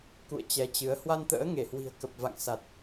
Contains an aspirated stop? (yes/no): no